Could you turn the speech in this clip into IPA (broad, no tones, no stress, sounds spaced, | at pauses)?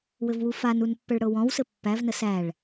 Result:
w ɘ v w u f a n u n pː ə ɭ ɽ ɤ w ɔ̃ w s ɘ pː æ v n ə s æ ɭ